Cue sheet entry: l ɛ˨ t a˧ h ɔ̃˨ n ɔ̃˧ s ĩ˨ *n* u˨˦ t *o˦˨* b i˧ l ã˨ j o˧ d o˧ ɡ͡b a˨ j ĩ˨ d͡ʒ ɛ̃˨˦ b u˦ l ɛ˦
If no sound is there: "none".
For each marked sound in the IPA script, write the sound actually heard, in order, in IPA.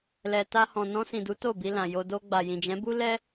d, o˦˨

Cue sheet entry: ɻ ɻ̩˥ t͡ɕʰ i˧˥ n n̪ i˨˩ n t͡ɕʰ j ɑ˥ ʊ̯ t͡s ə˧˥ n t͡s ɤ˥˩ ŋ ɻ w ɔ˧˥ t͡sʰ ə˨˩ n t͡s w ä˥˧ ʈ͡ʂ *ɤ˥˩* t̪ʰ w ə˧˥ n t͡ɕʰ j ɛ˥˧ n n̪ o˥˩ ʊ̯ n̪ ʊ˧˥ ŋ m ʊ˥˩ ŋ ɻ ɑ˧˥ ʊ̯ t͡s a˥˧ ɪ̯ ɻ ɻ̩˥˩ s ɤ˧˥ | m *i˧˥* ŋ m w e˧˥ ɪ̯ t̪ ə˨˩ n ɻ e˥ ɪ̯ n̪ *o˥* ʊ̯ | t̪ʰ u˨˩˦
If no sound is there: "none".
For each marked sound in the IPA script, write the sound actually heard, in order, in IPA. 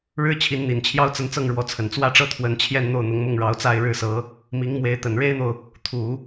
ɤ˥˩, i˧˥, o˨

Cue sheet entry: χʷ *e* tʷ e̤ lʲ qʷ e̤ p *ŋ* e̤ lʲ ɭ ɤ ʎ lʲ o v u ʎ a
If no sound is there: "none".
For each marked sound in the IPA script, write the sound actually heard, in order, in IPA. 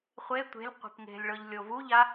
e, ŋ

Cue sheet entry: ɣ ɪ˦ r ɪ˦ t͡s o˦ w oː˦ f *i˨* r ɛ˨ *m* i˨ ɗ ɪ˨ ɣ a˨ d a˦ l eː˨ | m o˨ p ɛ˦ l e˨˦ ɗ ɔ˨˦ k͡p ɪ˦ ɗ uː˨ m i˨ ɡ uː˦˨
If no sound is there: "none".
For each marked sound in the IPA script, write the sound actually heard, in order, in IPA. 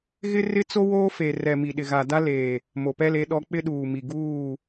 e˨, m

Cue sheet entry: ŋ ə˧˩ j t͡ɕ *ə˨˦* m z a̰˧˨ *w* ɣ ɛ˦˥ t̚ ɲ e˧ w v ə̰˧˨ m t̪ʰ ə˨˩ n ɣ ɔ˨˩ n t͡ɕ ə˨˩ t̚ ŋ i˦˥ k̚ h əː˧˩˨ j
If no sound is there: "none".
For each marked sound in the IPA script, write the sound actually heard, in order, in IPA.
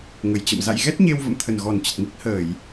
ə̰˧˨, j

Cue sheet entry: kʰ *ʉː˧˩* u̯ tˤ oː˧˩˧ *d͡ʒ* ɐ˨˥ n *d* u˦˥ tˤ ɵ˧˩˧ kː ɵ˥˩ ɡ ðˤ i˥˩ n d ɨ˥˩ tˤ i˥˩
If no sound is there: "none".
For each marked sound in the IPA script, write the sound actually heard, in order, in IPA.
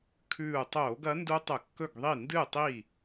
ʉː˧˩, ɡ, d

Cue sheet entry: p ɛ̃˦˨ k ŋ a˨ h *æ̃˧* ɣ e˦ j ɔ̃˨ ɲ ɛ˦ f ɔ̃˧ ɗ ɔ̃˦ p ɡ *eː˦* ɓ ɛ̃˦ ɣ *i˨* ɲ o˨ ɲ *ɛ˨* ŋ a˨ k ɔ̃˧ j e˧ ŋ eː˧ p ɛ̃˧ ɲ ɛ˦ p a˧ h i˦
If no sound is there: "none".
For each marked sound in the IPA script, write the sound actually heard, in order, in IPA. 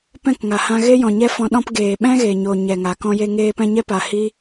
ã˧, eː˨, e˨, ɛ˨

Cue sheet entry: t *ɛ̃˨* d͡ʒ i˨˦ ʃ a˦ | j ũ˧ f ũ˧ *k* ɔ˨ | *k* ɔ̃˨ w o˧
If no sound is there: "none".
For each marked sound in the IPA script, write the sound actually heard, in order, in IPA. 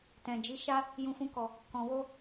ɛ̃˨, k, k

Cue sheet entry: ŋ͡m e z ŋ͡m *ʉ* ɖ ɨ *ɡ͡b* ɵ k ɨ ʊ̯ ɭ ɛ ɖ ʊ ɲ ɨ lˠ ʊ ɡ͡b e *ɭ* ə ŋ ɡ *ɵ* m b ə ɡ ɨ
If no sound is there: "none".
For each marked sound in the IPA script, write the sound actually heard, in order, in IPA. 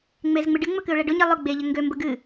ɨ, ŋ͡m, ʎ, ø

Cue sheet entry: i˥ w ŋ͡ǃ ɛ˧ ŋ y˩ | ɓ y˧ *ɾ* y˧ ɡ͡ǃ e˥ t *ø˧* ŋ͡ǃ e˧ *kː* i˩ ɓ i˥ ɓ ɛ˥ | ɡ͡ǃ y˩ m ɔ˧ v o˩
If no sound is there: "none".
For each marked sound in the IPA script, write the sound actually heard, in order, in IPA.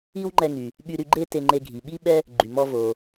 ɾ, e˧, ɡʱ

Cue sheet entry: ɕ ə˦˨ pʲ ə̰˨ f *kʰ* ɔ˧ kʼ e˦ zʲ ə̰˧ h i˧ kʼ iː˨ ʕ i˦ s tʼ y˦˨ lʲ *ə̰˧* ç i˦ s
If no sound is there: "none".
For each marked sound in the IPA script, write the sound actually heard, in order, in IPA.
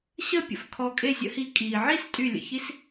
kʰ, ə̰˨

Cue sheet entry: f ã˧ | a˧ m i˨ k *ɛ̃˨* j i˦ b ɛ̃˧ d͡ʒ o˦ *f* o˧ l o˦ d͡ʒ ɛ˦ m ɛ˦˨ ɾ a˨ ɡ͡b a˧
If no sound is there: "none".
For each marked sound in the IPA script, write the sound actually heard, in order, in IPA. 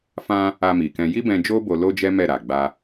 ɛ̃˧, b

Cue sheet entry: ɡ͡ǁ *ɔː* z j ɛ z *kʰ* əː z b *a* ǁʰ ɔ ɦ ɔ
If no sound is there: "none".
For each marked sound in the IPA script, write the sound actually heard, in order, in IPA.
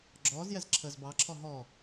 ɔː, ǁʰ, ɑ

